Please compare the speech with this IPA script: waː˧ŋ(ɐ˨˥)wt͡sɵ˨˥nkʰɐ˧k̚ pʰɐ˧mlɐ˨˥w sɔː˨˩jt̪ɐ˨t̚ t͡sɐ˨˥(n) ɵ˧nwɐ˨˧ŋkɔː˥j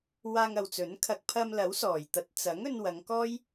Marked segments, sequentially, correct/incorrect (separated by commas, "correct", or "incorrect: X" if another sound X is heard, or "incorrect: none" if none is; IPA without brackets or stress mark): incorrect: ɐ˨, incorrect: ŋ